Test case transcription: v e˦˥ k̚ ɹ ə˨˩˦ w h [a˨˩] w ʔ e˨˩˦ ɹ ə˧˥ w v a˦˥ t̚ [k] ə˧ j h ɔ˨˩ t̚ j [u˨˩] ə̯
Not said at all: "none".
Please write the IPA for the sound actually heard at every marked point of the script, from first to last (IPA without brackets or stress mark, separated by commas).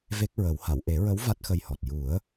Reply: a˨˩˨, x, u˨˩˦